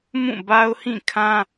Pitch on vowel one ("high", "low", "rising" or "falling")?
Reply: falling